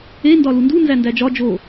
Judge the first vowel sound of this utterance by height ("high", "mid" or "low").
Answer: mid